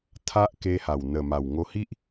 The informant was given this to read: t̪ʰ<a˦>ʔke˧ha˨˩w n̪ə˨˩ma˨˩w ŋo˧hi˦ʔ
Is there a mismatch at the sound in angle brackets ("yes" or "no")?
no